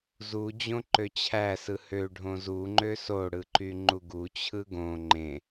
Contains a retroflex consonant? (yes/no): yes